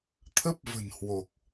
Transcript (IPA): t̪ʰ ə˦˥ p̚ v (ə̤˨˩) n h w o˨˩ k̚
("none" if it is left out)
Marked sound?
ə̤˨˩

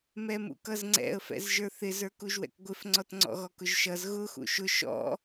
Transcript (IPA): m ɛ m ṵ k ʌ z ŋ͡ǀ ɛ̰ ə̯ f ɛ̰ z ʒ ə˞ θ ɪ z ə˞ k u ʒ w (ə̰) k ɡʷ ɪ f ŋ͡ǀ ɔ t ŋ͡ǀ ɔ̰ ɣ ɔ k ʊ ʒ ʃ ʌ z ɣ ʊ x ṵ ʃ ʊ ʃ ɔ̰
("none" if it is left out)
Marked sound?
ɛ̰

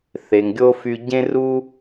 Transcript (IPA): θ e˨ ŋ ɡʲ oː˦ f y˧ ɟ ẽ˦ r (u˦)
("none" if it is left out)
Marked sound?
u˦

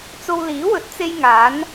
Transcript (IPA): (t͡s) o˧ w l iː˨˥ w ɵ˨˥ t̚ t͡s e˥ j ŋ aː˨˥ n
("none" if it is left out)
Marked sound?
t͡s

